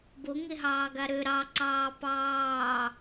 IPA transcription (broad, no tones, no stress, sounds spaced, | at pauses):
b o ŋ e ɦ ɑː ɡ a ɾ ø ɾ ɑ ǀ ɑː p ɑː